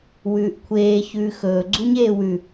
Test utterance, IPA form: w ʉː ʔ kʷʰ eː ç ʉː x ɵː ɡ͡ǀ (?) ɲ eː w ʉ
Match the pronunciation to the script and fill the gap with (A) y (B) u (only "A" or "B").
B